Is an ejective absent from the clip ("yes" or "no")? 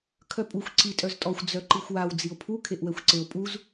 no